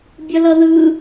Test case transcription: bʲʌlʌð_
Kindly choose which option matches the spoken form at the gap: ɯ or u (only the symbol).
ɯ